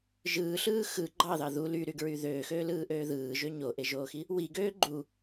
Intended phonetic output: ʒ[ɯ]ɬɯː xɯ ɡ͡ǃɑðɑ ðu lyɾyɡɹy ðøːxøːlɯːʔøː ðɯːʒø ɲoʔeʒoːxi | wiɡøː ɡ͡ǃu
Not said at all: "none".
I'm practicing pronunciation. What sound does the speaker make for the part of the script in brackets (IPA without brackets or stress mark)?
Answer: ɯː